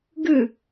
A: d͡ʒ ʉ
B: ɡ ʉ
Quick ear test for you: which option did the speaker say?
B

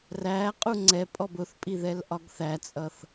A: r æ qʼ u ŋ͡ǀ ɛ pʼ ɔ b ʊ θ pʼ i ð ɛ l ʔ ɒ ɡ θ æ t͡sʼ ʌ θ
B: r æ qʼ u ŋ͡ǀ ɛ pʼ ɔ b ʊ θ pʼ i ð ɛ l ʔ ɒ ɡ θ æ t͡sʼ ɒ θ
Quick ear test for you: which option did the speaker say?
A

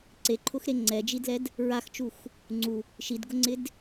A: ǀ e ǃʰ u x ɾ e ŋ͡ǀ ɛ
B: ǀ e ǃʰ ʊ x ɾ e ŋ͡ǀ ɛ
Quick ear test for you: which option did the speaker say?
B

